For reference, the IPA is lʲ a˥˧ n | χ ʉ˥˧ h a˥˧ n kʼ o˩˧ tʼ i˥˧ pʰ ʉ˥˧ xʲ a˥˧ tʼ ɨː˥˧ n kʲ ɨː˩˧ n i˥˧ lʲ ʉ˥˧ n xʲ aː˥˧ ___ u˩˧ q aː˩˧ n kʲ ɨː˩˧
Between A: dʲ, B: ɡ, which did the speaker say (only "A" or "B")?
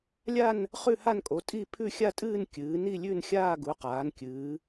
B